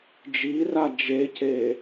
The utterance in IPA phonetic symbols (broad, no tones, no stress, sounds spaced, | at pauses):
d͡ʒ i r a d͡ʒ e c e